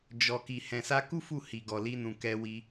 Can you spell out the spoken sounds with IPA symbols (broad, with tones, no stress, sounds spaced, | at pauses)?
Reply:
d͡ʒ ɔ˨ k i˨ h ɛ̃˨ s a˧ k u˦ f u˦˨ h i˨ ɡ ɔ˨ l i˧ n ũ˨ k ɛ˧ w i˧